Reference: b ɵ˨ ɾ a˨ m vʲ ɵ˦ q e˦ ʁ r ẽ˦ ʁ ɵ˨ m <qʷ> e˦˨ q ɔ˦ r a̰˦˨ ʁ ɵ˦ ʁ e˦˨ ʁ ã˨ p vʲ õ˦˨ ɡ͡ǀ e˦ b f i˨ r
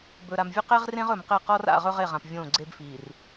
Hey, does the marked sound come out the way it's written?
no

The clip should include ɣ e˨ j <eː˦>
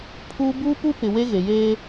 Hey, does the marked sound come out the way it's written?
yes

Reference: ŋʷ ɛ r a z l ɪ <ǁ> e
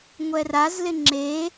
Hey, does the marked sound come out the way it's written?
no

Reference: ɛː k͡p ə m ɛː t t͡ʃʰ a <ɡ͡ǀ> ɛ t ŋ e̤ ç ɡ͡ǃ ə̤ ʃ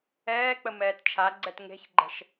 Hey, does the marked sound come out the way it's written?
yes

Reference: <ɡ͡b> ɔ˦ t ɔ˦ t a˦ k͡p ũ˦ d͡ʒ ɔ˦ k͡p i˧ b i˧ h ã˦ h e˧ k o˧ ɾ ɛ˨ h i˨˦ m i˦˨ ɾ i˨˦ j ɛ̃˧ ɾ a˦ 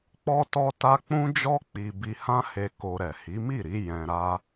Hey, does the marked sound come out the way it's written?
no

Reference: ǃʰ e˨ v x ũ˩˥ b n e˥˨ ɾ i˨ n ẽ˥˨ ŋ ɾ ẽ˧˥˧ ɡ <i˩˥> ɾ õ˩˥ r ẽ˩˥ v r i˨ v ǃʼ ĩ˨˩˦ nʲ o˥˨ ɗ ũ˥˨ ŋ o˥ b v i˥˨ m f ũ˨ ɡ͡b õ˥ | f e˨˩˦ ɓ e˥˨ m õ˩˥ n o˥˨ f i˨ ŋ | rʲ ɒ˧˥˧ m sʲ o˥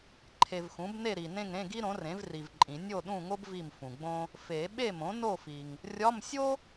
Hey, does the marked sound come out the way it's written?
no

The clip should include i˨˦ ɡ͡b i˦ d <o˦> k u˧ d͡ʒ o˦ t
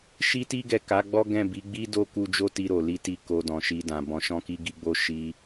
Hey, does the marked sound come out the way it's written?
yes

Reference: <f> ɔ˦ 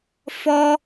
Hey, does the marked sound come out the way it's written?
yes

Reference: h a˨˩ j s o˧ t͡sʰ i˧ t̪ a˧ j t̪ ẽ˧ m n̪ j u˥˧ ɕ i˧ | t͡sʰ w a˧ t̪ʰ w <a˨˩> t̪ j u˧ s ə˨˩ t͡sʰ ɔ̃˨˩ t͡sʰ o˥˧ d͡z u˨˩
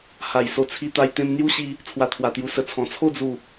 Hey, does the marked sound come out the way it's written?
yes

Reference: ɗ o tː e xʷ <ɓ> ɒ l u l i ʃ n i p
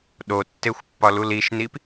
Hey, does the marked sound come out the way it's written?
no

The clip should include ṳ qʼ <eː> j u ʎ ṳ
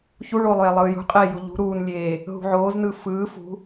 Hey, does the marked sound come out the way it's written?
yes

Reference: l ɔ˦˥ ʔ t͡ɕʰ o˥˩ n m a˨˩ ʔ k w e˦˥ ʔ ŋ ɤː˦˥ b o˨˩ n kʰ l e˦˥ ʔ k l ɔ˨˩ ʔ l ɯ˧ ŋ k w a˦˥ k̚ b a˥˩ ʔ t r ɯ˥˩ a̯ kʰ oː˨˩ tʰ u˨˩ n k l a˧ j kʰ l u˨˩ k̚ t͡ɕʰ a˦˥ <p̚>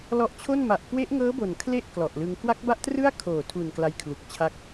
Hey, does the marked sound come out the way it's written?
no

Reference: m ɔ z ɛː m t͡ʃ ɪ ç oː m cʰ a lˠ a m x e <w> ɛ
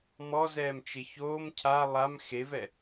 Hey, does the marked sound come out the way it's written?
no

